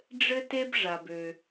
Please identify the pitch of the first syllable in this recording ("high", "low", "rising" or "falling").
high